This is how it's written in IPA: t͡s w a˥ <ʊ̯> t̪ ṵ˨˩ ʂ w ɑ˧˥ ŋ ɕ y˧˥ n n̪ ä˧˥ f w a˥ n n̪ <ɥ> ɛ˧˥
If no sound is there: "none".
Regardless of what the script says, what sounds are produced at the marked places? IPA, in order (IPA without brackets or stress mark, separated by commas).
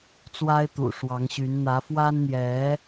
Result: ɪ̯, j